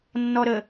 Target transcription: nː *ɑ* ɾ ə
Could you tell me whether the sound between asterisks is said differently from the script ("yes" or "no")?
yes